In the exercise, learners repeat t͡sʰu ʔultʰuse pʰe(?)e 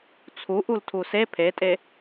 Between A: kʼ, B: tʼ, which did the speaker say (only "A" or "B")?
B